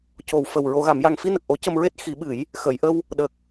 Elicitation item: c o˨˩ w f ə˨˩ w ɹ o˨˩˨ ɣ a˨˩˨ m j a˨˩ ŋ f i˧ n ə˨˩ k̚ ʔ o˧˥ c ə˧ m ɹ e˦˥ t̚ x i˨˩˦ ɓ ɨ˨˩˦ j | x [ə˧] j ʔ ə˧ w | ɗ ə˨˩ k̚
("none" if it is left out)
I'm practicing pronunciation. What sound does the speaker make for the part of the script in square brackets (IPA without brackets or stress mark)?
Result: ə˨˩˨